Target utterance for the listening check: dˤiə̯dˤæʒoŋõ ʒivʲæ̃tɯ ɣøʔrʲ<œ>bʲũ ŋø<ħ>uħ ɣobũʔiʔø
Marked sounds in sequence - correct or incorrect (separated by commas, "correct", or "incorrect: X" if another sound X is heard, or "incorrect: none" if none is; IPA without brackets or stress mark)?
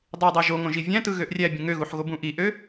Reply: incorrect: æ, incorrect: ɣ